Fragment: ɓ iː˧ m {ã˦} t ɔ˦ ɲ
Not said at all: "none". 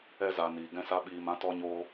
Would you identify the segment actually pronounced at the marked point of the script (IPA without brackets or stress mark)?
ã˦